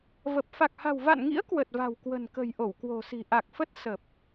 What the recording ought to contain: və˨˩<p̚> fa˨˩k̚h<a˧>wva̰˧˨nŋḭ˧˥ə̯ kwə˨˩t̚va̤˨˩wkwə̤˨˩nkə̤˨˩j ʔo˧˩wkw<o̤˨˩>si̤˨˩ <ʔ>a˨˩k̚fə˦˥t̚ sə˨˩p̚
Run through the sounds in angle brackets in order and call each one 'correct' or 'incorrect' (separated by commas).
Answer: correct, incorrect, correct, correct